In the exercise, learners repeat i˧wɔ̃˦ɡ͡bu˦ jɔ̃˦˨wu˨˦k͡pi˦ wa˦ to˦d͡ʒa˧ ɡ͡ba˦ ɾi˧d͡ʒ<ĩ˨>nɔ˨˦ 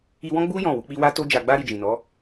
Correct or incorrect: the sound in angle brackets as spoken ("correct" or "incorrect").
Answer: correct